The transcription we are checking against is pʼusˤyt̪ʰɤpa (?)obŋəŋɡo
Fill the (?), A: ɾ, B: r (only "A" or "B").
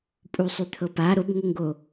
A